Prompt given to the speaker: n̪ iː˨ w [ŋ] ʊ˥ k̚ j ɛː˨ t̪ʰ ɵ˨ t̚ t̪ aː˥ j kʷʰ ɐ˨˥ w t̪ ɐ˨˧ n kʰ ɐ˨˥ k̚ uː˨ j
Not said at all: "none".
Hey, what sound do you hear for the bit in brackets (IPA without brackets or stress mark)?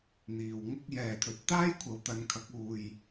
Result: ŋ